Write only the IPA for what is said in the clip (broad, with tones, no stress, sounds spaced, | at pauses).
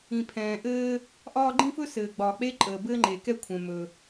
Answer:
ĩ˩ pʰ ɛ̃ː˩ ʔ ɘː˥ | ʔ ɒː˥ ɡ͡ǃ ĩ˥ f ɵ˥ s ɘː˩ ɡ͡b ɒː˩ k͡p e˥ ǃʼ əː˩ b ɘː˥ ŋ͡ǃ e˩ k ɛ˥ kʷʰ ɛ̃˩ m ɵ˩